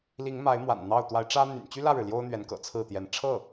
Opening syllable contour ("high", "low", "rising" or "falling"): rising